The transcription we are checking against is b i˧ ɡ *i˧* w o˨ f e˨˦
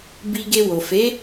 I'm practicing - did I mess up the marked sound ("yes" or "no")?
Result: yes